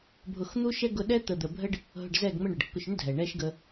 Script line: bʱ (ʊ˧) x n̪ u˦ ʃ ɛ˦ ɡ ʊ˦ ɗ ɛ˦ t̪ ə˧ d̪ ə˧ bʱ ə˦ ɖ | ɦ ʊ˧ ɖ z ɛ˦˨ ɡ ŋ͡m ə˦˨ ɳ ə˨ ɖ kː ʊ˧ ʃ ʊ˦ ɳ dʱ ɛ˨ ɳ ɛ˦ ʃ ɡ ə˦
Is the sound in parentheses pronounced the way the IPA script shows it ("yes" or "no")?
yes